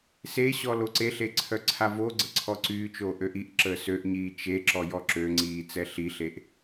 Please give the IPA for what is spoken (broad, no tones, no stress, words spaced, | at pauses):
seɕɔ loǀeɬe ǀʰœǀʰavoɡ͡ǀə ǀʰɔǀyːt͡ʃoː ʔøʔiʔǁəː søʔɲiː t͡ʃeǁɔ jɔǁøŋ͡ǀiː t͡sɛɬiɬeʔ